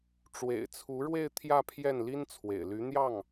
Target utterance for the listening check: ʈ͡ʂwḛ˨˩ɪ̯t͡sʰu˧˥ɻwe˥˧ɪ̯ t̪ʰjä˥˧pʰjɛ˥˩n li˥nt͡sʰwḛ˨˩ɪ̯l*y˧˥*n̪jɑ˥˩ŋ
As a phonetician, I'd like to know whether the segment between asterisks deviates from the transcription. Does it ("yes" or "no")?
no